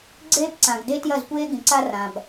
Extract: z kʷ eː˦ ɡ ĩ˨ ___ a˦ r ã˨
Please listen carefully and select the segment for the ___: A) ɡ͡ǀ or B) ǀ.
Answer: B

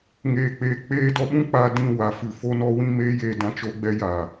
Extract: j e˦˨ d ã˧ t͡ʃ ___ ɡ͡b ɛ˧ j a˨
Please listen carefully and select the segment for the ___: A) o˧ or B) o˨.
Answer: A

